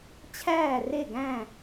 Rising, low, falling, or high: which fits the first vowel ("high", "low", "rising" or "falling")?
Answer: falling